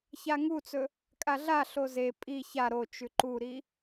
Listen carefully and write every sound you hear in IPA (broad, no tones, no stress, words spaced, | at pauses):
çaŋut͡sɵ | kʼaɮaɬo ze pʼi ça ɾot͡ʃʉ ǃuɾi